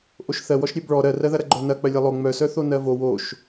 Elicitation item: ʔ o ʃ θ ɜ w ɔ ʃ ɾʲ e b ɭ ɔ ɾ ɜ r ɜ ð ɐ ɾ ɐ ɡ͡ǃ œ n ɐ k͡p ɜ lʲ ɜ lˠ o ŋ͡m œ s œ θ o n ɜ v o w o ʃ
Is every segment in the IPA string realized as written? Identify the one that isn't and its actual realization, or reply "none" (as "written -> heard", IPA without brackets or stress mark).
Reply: none